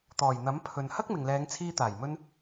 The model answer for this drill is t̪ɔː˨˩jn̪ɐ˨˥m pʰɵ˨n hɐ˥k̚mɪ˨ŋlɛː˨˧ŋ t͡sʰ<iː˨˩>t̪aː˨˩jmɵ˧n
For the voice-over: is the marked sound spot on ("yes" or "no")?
no